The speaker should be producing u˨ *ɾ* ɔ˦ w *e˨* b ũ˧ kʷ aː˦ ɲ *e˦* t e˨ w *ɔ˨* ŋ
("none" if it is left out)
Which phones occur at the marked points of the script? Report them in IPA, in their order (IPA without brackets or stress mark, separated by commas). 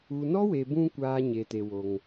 n, e˨, e˨, o˨